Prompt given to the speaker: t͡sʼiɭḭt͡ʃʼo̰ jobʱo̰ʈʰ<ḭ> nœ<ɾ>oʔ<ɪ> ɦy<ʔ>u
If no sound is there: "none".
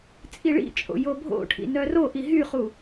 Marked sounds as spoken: ḭ, r, i, χ

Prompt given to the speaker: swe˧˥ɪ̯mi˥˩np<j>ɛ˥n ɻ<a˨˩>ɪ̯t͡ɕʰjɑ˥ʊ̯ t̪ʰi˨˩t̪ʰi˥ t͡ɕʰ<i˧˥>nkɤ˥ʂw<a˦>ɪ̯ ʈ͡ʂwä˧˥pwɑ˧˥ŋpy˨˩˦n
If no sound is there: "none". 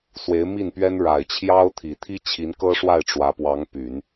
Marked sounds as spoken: ɥ, a˨˩, i˧˥, a˥˩

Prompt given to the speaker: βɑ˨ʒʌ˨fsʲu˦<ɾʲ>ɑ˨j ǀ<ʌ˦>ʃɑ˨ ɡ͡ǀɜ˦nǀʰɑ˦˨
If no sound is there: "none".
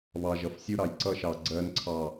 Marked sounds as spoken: ɾ, ʌ˦

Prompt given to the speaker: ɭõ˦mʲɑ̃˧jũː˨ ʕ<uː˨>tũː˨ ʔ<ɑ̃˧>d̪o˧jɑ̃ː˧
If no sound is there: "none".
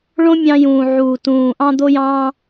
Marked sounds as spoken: uː˨, ɑ̃˧

